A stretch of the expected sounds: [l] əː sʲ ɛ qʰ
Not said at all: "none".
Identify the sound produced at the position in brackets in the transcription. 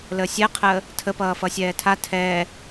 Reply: l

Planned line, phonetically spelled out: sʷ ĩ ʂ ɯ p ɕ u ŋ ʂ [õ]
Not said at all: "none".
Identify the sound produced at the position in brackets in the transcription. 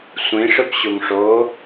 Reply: o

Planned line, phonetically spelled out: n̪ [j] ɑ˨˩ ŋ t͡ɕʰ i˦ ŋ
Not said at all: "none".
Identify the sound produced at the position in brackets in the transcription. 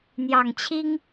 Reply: j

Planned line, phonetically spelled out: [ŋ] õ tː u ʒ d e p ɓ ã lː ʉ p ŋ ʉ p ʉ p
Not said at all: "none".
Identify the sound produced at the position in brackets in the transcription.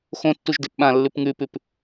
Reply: x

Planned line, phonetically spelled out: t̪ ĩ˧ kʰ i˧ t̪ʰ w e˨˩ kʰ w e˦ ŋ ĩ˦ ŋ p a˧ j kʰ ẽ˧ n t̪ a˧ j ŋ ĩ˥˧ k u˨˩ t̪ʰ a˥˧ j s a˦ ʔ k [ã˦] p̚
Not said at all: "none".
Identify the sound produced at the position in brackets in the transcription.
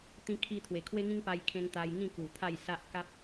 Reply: a˦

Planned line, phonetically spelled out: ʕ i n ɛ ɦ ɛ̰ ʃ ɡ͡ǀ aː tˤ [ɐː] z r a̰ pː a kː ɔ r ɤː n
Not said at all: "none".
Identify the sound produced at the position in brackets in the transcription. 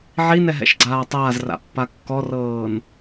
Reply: aː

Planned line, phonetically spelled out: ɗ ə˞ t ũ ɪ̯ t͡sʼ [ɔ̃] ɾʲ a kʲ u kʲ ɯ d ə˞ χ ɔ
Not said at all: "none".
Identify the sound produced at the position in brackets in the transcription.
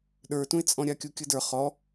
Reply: ɔ̃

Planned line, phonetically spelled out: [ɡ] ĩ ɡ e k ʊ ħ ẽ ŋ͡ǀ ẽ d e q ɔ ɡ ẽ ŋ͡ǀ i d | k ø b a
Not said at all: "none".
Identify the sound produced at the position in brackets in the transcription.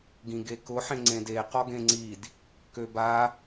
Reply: ɡ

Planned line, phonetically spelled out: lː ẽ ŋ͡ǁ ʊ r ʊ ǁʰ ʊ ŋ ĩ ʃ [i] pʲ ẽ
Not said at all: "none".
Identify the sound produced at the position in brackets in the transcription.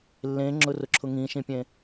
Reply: ĩ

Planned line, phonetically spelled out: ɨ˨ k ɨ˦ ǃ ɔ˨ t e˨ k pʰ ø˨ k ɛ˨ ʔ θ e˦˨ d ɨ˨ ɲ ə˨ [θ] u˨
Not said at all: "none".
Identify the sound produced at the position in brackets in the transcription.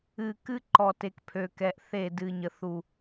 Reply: θ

